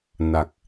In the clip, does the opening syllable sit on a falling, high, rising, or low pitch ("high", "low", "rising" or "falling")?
low